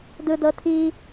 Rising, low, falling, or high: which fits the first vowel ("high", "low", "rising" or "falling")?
high